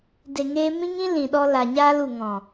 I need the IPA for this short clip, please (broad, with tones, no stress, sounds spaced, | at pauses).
d e˧ ŋ eː˦ m ĩ˦ ŋ ĩ˦ l ĩ˨ ɗ ɔ˧ l a˨ ɲ aː˧ l u˨ ŋ ɔ̃˨